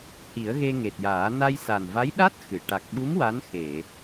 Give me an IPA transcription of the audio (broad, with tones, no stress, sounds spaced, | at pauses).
h i˨˩˦ ə̯ ɣ e˧ ŋ e˨˩ t̚ j aː˨˩˦ n a˧ j s a˨˩ n v a˧˥ j ɗ a˦˥ t̚ x ɨ˨˩˨ ʈ a˨˩ k̚ ɓ u˧˥ m w a˧˥ n x e˨˩˨